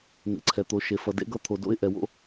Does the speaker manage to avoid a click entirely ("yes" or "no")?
no